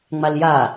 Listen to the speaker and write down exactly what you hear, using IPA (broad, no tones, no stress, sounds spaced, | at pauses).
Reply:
ŋ͡m a l j a